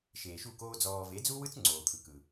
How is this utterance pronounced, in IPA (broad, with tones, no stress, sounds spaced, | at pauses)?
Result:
ʃ eː˨ ʃ u˦˨ k oː˦ d͡z ɔː˧ v e˨˦ d͡z u˦ w ɯ˦ t͡s ŋ͡ǀ oː˨ t̪ʰ ɯ˨ k ɯ˨